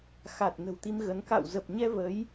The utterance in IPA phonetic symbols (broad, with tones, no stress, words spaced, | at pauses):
xa˨˩t̚ nə̤˨˩wt̪i˧mɣə˨˦n ka̰˧˨wzə˨˩p̚ɲɛ˧ və˨˦j